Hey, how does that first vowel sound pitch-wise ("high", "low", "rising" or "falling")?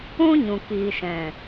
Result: high